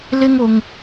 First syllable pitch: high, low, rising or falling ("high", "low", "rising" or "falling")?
high